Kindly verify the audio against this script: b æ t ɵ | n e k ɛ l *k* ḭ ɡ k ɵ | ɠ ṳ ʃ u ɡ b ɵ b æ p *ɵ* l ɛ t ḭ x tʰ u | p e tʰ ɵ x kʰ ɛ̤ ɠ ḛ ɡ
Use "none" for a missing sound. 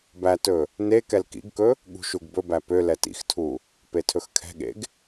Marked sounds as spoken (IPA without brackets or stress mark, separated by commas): k, ø